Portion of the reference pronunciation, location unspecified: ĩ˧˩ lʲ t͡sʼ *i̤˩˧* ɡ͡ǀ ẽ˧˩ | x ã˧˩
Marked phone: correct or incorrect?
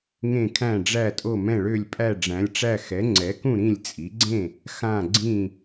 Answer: incorrect